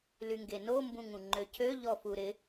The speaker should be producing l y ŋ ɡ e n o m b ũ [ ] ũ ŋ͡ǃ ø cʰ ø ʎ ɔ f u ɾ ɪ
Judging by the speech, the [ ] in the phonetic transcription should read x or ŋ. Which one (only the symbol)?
ŋ